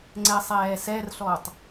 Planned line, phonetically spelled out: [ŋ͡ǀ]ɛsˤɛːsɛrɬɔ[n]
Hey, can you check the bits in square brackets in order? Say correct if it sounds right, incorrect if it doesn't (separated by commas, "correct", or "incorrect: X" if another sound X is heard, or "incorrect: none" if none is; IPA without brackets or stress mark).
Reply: correct, incorrect: tˤ